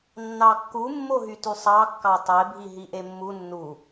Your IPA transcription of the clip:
nː ɑ kː u mː o ɦ y t y sˤ ɑ kː ɑ tˤ e bʱ i ɦ i ʔ e mː u nː u

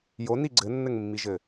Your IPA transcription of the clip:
j o n i ɡ͡ǀ ɘ nː ɘ ŋ mː i ʒ ɘ

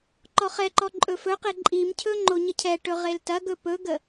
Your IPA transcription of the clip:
ǃ ɔ χ ɛ ǃ ɔ ǃʼ ɵ f ɵ q e ǃʼ i m cʰ ɵ ŋ͡ǃ o ɲ ə cʰ ɛ ʈ ɵ ʁ e l t ɐ ɡ ɵ p ɵ ɡ ə

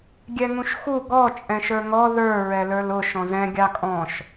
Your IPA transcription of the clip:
ɡʲ ɛ ŋ ũ ʃ x u ɡ ɔ t͡ʃʼ ɛ̃ ʃ ə˞ ŋ ɔ ð ə˞ ɹ ɛ l ə˞ l ʊ ʃ ɔ̃ z ɛ̃ ɡʲ ɑ kʼ ɔ̃ ʃ

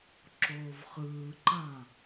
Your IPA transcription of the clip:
ǁ oː v χ ɯː ǃ ã

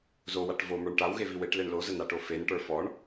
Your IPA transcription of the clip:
z o w a ʈ v o m ə˞ ɳ ʈ a w ɣ e v i w e ʈ l e ɳ l o z ə n a ʈ o f e n ʈ ə˞ f ɔ ɳ

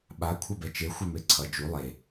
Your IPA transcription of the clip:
ɓ a kʷʰ ʌ b ɛ t͡ʃ e xʷ ɛ m e ǀʰ ʌ d͡ʒ u lˠ e

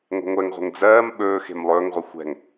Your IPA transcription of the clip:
ŋʷ ɛ̤ ŋʷ ɛ ŋ ʁʷ ɛ̤ ŋ d͡z ɜː m ɓ ɵː x e̤ m lˠ ɵː ŋ ʁʷ ɛ xʷ ɛ̤ ŋ

